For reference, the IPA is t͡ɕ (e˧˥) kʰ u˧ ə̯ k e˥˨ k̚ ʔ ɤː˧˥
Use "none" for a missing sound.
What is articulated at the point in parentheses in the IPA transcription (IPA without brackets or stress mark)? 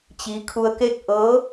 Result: i˧˥